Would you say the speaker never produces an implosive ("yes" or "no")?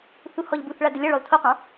yes